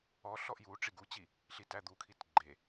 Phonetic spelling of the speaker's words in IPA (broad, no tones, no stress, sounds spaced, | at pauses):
ɔ ɬ ɔ ʔ j u ʈ͡ʂ i ɡ u t͡ɕ i | ɬ i t æ d̪ u kʰ i t ɡ͡ǃ e